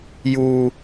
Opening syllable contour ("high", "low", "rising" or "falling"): high